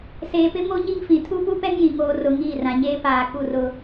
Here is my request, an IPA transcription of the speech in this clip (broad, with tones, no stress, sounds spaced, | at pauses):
s eː˨ p ɪ˦ m o˦ ɲ i˦ ŋ f ĩ˨ tʰ u˦ p u˦ p ɛ˦ ŋ j ĩ˨ ŋ oː˨ r ʊ˨ ŋ iː˦˨ r ã˨ ɲ eː˦ p aː˨ k u˦˨ r ʊ˦